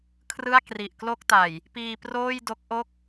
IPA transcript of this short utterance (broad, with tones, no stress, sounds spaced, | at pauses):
kʰ r ɯ˥˩ a̯ k r i˨˩ ʔ k l o˥˩ k̚ t a˨˩ j | p iː˧ p r oː˥˩ j d o˦˥ k̚ ʔ o˥˩ k̚